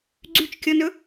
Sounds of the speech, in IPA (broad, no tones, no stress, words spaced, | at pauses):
ɡ͡ǀyt͡ʃkʲɔnɵ